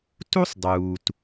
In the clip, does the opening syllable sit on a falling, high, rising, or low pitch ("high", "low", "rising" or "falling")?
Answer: high